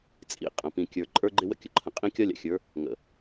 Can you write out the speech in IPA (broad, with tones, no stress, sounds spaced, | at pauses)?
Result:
t͡sʼ ḭ˨ qʼ ə̃˨ p ĩ˨ kʲ ə˞˨ ǃʼ ə˞˦ ɡ͡ǃ ɪ˦ w ə̰˦ kʲ ə˨ ǃʰ ə̃˨ qʼ ĩ˦ kʲ ɒ˦ lʲ a̰˨ xʲ ə˞˨˦ | ŋ ə̰˨